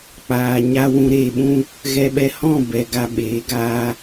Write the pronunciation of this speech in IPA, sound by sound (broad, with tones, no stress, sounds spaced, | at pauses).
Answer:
k͡p aː˨ ɲ a˦ w ũ˧ ɾ eː˧ ɓ ũ˦ | ɣ ɛ˧ ɓ ɛ˧ h ɔ̃˦˨ b ɛ˨ ɡ a˧ ɓ eː˨˦ ɡ aː˧